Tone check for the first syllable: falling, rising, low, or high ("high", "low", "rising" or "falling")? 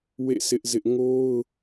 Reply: falling